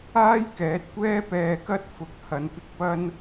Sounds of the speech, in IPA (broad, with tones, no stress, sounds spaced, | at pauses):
aː˥ j k ɛː˨˥ t̚ kʷ ɛː˥ p ɛː˧ k ɐ˥ t̚ f ʊ˨˥ k̚ h ɐ˨˥ n p ɪ˧ k̚ p ɐ˥ n